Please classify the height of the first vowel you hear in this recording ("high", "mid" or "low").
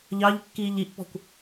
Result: low